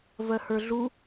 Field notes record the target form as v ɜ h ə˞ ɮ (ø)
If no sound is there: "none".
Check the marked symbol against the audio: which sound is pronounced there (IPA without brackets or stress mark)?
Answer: u